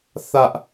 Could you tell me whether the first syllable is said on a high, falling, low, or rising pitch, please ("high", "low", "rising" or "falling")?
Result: high